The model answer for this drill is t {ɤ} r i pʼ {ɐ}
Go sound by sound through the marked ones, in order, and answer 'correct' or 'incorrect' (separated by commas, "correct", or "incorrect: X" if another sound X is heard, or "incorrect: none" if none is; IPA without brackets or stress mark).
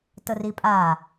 correct, incorrect: a